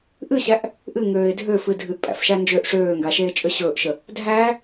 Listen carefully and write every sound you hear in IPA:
ʔ ɨ ɕ æ ʔ | ʔ ɨ ŋ øː ɪ̯ dʱ ø f ɨ dʱ ɨ ʔ pʼ æ̰ f ʃ æ n d͡ʒ ø ʔ ʂ øː ŋ ɡ a ʃ eː t͡ʃʼ ø ɕ ɵː ʔ ʃ ə | dʱ æ

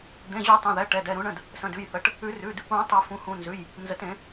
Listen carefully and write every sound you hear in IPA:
d̪ ẽ˩˧˩ ʑ u˨˩˦ tˤ ɛ̃˩˧˩ ð ɛ˩˧˩ ʈ ɛ˩˧˩ d ɛ˩˧˩ ɾ ũ˨˩˦ ɳ ə̃˩˧˩ d | s ə̃˩˧˩ d ʉ˩˧˩ j θ ə˩˧˩ ʈ | ʉ˨˩˦ r ʉ˩˧˩ d | ũ˨˩˦ tˤ ə˨˩˦ f ũ˩˧˩ h ũ˩˧˩ n z ʉ˩˧˩ j | n z ə˨˩˦ t ẽ˨˩˦

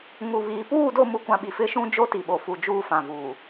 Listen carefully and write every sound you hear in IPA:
ŋ u˨ β iː˨ p uː˦˨ d o˦˨ m u˨ kʷ ã˨ ɓ i˨ f ɪ˦˨ ʃ ũ˦ d͡ʒ o˦ t i˨ ɓ o˨ f u˨ d͡ʒ uː˦ f ã˨ v uː˨

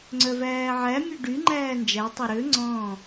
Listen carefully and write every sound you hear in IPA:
ŋ͡ǀ œ v æː ʕ æ mʲ ø ɖ y ŋ͡ǃ æː n d͡ʒ æ tˤ ɑ ɾ ø ŋ͡ǀ ɔ̃ː

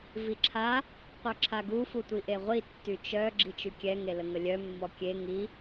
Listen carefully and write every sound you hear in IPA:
v i ǁʰ a | qʷ œ ǁʰ a ɡ u f u tʷ i ʔ e ʁʷ i tː y t͡ʃ œ ɡ͡ǁ i t͡ʃ y kʲ ɛ ŋ e l ə ŋ ə lʲ œ mː ɔ kʲ e ŋ i

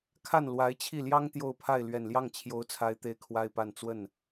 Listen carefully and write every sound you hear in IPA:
kʰ a˥˩ n l w a˧˥ ɪ̯ t͡ɕʰ i˥˩ l j ɑ˥ ŋ t̪ j o˥˧ ʊ̯ pʰ a˥˩ ɪ̯ l ɥ ɛ˨˩ n l j ɑ˥˩ ŋ t͡ɕʰ j o˧˥ ʊ̯ t͡sʰ a˧˥ ɪ̯ t̪ e˥˩ ɪ̯ kʰ w a˥ ɪ̯ p a˥˧ n t͡s w ə˥˩ n

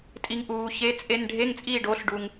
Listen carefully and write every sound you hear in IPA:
tʼ i˨ ŋ ʔ uː˨ ç e˧˥˧ t͡sʼ e˧˥˧ n ɖʱ e˧˥˧ ŋ t͡sʼ iː˥˨ ɖ o˩˥ ɬ ɖ u˨ ŋ

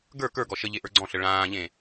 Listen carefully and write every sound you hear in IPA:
ɡ ə˞ k ə˞ ɡ ɔ ʃ ə ʎ e ʔ ə˞ ɡ͡ǀ ɔ̃ ɬ ə ɭ ãː ʎ ẽ

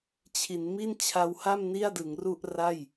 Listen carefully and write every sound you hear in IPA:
t͡ɕʰ i˩˦ n m i˥˩ n t͡ɕʰ a˧ w h a˥˩ m n i˥˩ a̯ d ɯ˩˦ ŋ r u˥˩ ʔ r a˥˩ j

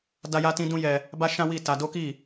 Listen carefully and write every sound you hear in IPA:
d a˦ j a˦ t ĩ˦ d ũ˦ j ɛ˧ | b a˦ ʃ ã˦ w i˦˨ t a˧ d o˦ k i˦˨

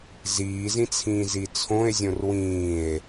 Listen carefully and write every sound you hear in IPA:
z iː z ĩ t͡sʰ ĩː z i t͡sʰ õ e̯ zʲ õ r w ĩː e̯

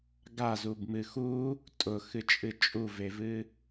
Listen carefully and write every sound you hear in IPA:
ɡ a z u b m ɨ x u | tʼ ʊ x ɨ t͡ʃʼ ɨ t͡ʃʼ u v e v ɨ

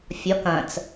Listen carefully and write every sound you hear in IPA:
fʲ ɒ k ɐ̃ t͡s

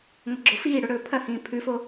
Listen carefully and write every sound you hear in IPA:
ŋʷ ɐ ɡ͡ǁ o f iː ɽ o ɽ ɵː pʰ ɐ h ĩː pʰ ʉ f o

